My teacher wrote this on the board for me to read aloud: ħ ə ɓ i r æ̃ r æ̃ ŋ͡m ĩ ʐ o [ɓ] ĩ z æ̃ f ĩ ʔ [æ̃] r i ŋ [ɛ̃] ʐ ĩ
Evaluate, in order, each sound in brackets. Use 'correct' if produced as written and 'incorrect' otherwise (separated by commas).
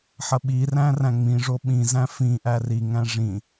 correct, incorrect, incorrect